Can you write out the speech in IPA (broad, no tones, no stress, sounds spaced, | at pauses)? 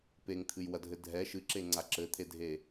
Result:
p e ŋ t̪ʰ ɨ j w ɐ dʱ ɘ dʱ ɛ ʃ ɨ ǁ e ŋ͡ǀ a ǁ ɘ t̪ʰ e dʱ e